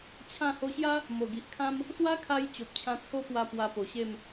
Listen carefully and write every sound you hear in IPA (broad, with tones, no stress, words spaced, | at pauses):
t͡ɕʰã˥˧ ho˧ɕja˦ | mo˨˩ɡi˨ʔkʰã˦m | swa˦kʰa˧j t͡ɕo˨p̚t͡ɕʰã˧t͡sʰo˦pwa˧ pwa˧po˨˩ɕe˥˧m